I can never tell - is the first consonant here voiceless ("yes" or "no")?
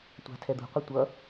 yes